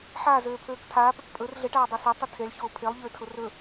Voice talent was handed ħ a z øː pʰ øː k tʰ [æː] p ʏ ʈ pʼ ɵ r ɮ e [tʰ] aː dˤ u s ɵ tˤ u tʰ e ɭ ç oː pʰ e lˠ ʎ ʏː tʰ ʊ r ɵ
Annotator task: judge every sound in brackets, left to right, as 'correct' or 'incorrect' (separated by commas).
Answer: incorrect, incorrect